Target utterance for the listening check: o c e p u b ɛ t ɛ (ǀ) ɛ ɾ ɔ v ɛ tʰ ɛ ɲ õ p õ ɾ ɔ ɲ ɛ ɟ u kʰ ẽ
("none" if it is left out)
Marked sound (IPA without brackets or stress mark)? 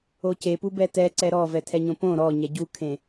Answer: ǀ